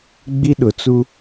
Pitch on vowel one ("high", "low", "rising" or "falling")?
high